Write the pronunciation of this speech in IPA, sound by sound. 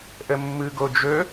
ʔ ə mː ɯ ɡ o d͡ʒ ɵ

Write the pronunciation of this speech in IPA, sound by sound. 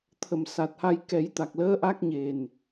t̪ʰ ə˨˩ m s a˨˩ t̚ h a˧ j k ɛ˨˩˦ j t̪ a˨˩ k̚ l əː˧˥ ʔ a˦˥ k̚ ɲ e˨˩ n

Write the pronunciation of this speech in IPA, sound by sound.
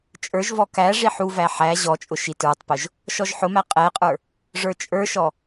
t͡ʃʼ ə˞ ʒ v ɔ k æ ʐ i ħ u v æ ħ æ ʑ ɔ t͡ʃʼ ʊ ʃ i t ə˞ tˤ p ʊ ʒ | ʃ ɔ ʒ ħ ʊ m æ qʼ ɛ qʼ ə˞ | ʐ ə˞ t͡ʃʼ ə˞ ʃ ɔ

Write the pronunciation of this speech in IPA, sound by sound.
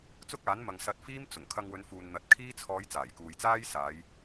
t͡s ʊ˥ k̚ aː˨˥ n m ɐ˨ ŋ s ɐ˧ t̚ f iː˥ m t͡s ʊ˨˩ ŋ kʰ ɐ˧ ŋ w ɵ˨˧ n f uː˨ n n̪ ɐ˨ t̚ kʰ iː˥ t͡sʰ ɔː˨˧ j t͡s aː˨˩ j k uː˨ j t͡s aː˥ j s aː˨˧ j

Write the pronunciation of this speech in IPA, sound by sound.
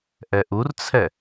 ʔ ɛ ʔ u r t͡sʰ ɛ

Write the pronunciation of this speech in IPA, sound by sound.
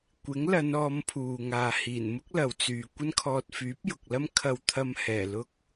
kʷ ɪ˨˥ ŋ l ɐ˨˧ n ɔː˨˧ m pʰ uː˨ ŋ aː˨ h iː˨˩ n m ʊ˥ k̚ l ɐ˨ w t͡s yː˨ kʷ ɐ˥ n kʰ ɔː˧ t̚ f yː˨˥ p̚ j ʊ˨ k̚ l ɐ˥ m kʰ ɐ˧ w t̪ʰ ɐ˧ m h ɛː˨˩ l ʊ˥ k̚

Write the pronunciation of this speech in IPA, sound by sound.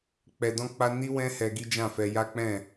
k͡p ɛ˧ d ɔ̃˦ k͡p a˦ n i˦ w ɛ̃˦ h ɛ˧ ɡ i˦ d͡ʒ ã˦˨ f ɛ˧ j a˦ k͡p ɛ̃˦˨

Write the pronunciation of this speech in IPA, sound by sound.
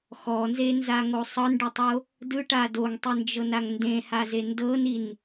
x ɔ n z e n z a ŋ o sˤ ɤ n ɖ ɯ tˤ o | d ɯ ʈ a d o ŋ tˤ i n d͡ʒ ɤ n a ŋ n d ẽ h a z e n d ɤ n i n

